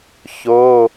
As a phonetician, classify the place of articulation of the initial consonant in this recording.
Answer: palatal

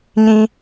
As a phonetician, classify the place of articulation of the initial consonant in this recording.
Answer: palatal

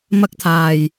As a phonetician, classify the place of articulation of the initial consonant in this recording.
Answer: labial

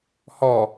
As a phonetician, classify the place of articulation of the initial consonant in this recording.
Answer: glottal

